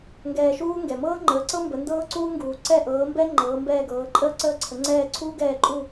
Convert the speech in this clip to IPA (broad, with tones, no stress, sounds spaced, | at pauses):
ŋ ɡ ɛː˧ ʃ uː˥ ŋ ɡ ɛ˩ m ɤː˥ ŋ͡ǃ əː˩˥ ǀ ɤ˥ m b ə˩˥ n d ɤː˥ ǀ uː˥ ŋ ɡ uː˩ ǀ ɛ˥˩ ʔ ɤː˩˥ m b ɛ˥ ŋ͡ǃ ɤː˩˥ m b ɛː˥˩ ɡ ɤː˩˥ ǃʼ əː˥ ǀ əː˥˩ ǀʰ ə˩˥ ŋ͡ǀ ɛː˥˩ ǀʰ uː˥ ɡ ɛː˥˩ ǃʼ u˥˩